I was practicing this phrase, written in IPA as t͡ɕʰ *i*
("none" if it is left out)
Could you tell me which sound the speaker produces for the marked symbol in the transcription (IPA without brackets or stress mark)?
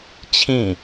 ĩ